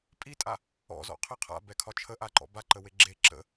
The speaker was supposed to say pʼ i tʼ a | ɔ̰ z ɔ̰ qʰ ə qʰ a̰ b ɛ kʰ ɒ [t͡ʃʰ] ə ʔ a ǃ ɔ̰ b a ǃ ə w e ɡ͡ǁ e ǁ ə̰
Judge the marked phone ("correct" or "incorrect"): correct